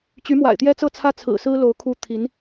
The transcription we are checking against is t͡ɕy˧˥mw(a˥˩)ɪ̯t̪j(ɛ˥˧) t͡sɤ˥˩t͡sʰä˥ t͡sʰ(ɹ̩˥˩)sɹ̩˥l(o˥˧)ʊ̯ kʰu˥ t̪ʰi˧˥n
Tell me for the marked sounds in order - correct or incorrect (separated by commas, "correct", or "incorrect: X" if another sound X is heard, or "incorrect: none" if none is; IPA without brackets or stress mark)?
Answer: incorrect: a̰˨˩, incorrect: ɛ˥, incorrect: ɹ̩˨˩, incorrect: o˧˥